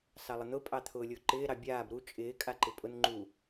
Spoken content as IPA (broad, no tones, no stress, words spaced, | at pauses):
sɑlˠən̪ʊ pʼɑt̪ʰʊːlʲʊːǃɪː ɾɑbʲaːb ɾu t͡ʃʼɪː kʼaǃɪpʼʊn ŋ͡ǃu